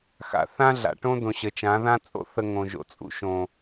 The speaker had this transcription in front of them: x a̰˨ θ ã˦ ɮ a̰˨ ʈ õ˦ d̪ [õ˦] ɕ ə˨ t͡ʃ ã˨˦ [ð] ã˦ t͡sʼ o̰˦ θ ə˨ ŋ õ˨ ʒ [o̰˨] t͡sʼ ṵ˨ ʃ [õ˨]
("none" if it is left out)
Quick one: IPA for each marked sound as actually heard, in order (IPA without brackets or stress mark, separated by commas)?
õ˨, ð, o̰˨, õ˨